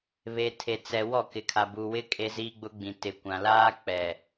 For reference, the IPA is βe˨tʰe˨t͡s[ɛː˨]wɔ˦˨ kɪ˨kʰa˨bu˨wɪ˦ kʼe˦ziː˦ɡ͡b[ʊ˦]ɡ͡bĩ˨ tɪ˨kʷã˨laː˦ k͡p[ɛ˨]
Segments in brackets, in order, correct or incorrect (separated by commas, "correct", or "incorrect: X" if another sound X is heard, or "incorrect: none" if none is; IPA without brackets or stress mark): incorrect: ɛ˨, correct, correct